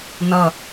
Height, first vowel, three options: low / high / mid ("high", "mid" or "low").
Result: mid